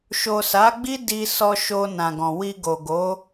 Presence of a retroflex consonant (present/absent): absent